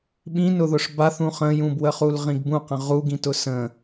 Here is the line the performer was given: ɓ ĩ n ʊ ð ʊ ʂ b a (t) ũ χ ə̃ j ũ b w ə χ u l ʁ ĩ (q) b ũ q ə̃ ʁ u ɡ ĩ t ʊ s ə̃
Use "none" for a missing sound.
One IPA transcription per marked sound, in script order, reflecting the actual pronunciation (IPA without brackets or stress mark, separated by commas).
θ, ɡ